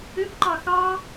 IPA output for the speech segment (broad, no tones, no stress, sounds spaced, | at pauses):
ø p ǃ ɑ x ɑ